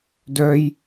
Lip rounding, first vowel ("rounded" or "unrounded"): rounded